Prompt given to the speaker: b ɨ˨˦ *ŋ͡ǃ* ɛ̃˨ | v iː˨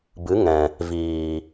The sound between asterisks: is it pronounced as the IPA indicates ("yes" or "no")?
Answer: no